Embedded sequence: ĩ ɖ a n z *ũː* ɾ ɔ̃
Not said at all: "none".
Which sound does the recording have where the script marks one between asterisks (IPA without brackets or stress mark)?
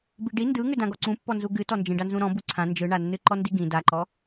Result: ũ